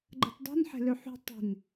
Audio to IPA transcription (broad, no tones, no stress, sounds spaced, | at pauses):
ɡ͡ǃ ə̤ t dˤ ṳ n ħ e̤ l ø ħ ṳ tˤ e̤ n